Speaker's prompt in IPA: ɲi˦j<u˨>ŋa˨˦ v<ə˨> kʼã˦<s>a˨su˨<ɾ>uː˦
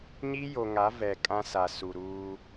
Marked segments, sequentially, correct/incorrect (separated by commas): incorrect, incorrect, correct, correct